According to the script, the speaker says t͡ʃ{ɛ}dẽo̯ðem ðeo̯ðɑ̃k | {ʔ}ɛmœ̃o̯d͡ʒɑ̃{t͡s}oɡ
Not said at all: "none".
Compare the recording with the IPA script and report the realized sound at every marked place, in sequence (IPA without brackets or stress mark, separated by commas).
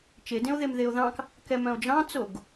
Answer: e, k, t͡s